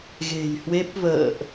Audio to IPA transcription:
ɣ e̤˨˩ j h w e˦˥ p̚ v ə̰ː˧˨ ʔ

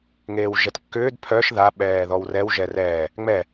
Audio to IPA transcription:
ŋ eː w ʒ ɛ t kː ʏː d pʰ œ ʃ ð a ɓ ɛː ð ɔ w r ɛ w ʒ ɛ r ɛː | ŋ͡m ɛ

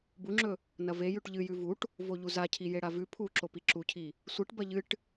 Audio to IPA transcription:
b u ŋ͡ǁ ɵ | n ɐ v e j ʉ ʈ ʎ ɨ j ʉ v u ʈ | v o ʎ u z a cʰ i j e ɽ a v ʉ pʰ u ǁ o p i ǁ u cʰ i | sʷ ɨ ʈ b ɐ ʎ ɨ ʈ

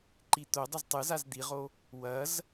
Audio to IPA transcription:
ǃ i t̪ o dˤ ə z tˤ ɨ z a z d̪ i ʁ o | w ɐ z

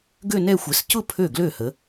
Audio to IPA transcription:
ɡ ø˥˧ n ɛ˥˧ xʷ ɛ˨˦ s c ʊ˥˧ pʰ ø˥˩ ɡ l ø˥˩ h ə˨˦

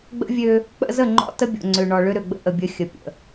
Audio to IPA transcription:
ɡ͡b ə̰˦ vʲ ø˦ | k͡p ə̰˦ z ə˦˨ ŋ͡ǃ ɔ̰˦ t ə˦ bʲ o̰˨ ŋ͡ǀ ø˨ ɳ ɔ˨ ɭ ø˦ ɾ ø˨ ɡ͡b ə̰˦ ʔ ə˨ bʲ ə˦ xʲ ə˨ pʲ ə̰˨

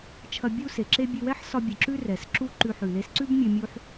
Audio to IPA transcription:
t͡ʃʰ ɐ˧ bʲ u˥ s e˩ ǁ e˥ bʲ ɨ˧ w ɛ˥ ħ s ɒ˧ bʲ ɨ˩ ǁ ʉ˥ r ɛ˩ s ǁ u˥ ǃ ʉ˧ ħ ʉ˩ l e˧ s ǀ ʉ˥ b mʲ ɨ˧ mʲ u˥ ħ

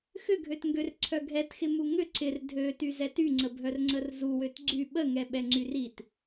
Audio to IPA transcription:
x ʏ ɡʱ ø t ŋ ɡ ø r ǀʰ œ ɡʱ ɛ t x ɪ m u ŋ ʏ ǀ ɪ r dʱ ø t y z ɛ t y ŋ͡ǀ ə bʱ œ r ŋ͡ǀ ə r z u w ø t ɡ͡ǀ y ɓ ə ŋ ɛ ɓ ɛ ŋ͡ǀ y r i t

